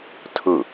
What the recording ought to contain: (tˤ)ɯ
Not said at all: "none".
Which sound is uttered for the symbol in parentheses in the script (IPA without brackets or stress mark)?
tʰ